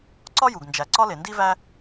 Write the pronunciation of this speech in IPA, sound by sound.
ǀɒ˥ju˩ɡnd͡ʒæ˩ ǀɒ˥le˩ndi˥væ˥

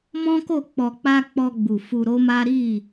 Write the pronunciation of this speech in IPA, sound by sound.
mɔ̃˦ko˦˨ k͡pɔ˧k͡pa˦ k͡pɔ˧ɡ͡bu˨ fu˧ɾo˦ma˦ ɾi˦˨

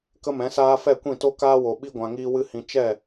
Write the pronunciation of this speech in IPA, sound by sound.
kə˦mɛ̃˨˦saː˦ fɛ˦˨kʷĩ˦˨to˦ kaː˦wo˨ ɓi˦ ɡʷã˨ŋiː˧wɨ˧ hĩ˨ t͡ʃɛ˦˨

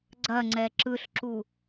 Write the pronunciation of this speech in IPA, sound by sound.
ɡ͡ǀɐŋ͡ǀɛ ǁɯɬǁu

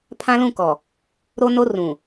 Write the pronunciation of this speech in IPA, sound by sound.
pʰã˦lũ˦˨kɔ˨ | ɾo˦no˦ rũ˨

